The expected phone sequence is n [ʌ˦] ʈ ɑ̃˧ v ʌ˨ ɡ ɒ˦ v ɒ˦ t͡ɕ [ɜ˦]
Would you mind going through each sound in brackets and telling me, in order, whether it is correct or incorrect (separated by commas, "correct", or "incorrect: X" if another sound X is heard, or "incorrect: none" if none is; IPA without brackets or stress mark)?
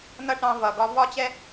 correct, incorrect: ɛ˦